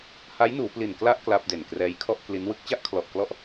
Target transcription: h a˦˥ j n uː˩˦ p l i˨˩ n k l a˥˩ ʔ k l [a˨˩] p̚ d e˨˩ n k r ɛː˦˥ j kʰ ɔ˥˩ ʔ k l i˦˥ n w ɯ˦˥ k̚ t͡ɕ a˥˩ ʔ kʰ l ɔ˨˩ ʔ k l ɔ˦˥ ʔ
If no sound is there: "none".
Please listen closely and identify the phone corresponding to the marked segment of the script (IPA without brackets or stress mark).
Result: a˥˩